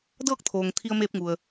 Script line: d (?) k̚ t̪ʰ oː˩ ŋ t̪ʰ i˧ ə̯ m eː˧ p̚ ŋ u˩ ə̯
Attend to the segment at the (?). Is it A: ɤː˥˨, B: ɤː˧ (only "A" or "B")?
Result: A